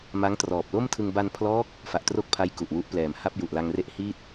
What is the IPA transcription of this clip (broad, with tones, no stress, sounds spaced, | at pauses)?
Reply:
m a˦˥ ŋ t r ɔː˨˩ p̚ l o˥˩ m tʰ ɯ˧ ŋ b a˧ n pʰ l ɔː˦˥ k̚ | f a˨˩ ʔ t r o˥˩ k̚ pʰ a˦˥ j k u˨˩ ʔ w u˦˥ ʔ p l ɛː˨˩ m h a˥˩ p̚ j u˨˩ ʔ l a˧ ŋ r e˥˩ ʔ h iː˥˩ t̚